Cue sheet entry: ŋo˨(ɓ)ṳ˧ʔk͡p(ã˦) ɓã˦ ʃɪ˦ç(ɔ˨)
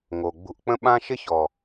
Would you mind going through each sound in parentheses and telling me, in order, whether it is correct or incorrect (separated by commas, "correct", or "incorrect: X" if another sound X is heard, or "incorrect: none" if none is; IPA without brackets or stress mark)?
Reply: incorrect: ɡ͡b, incorrect: ə̃˦, correct